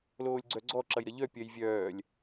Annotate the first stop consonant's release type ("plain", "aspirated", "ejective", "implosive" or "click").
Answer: click